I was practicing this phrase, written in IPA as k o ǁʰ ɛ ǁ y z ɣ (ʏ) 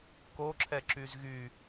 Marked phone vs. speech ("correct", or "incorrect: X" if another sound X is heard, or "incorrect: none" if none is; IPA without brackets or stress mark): incorrect: y